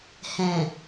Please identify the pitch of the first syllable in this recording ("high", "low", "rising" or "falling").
low